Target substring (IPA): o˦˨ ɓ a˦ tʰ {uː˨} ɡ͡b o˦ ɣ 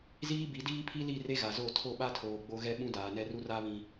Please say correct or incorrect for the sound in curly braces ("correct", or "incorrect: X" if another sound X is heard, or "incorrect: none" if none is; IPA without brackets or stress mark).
incorrect: oː˨